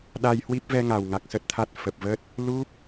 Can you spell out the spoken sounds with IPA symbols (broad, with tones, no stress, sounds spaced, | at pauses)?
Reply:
ɗ a˧ j h w i˦˥ p̚ v ɛ˧ ŋ a˨˩ w ŋ a˨˩ k̚ s ə˦˥ t̚ t̪ʰ a˦˥ t̚ f ə˨˩ p̚ v ə˦˥ t̚ | l u˦˥ p̚